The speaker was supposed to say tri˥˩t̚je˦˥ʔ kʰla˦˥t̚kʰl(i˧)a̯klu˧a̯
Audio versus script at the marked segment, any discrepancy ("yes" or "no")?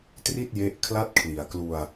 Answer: yes